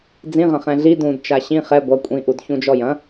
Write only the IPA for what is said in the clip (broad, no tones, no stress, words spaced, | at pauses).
d͡zĩʁɐ̃ χɛ̃ɮi dũd t͡ʃaɕĩ χɛ ɡʷɐ kʷʼĩʔud çũd͡ʒɔjɐ̃